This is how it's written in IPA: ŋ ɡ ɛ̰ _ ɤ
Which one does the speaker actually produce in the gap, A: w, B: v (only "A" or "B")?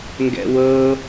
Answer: A